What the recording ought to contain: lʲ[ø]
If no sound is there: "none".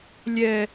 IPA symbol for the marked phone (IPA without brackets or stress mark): ɛ